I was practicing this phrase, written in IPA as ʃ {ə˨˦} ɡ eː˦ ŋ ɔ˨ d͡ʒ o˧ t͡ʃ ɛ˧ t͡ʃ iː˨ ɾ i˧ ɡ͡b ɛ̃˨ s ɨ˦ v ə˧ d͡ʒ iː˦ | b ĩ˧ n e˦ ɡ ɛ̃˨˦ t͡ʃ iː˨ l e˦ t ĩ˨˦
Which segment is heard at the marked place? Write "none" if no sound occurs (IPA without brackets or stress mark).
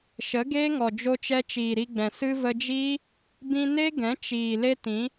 ə˨˦